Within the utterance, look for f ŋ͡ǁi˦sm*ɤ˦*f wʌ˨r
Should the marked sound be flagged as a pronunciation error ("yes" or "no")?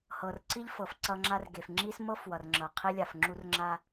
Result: no